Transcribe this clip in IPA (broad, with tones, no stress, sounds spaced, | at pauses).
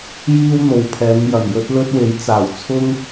j iː˥ w n̪ o˨ w pʰ ɛː˨˧ ŋ j ɐ˨˩ ŋ j ɵ˥ t̚ l ɵ˥ t̚ w e˨˥ j t͡s aː˨˩ w t͡sʰ ʊ˥ ŋ